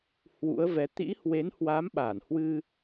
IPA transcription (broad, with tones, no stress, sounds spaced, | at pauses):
h w ṵ˧˥ ə̯ v ɛ˨˦ t̪ ḭ˧˥ h w e˨˦ n h w a˨˦ m ɓ a˧˩ n h w ɨ˧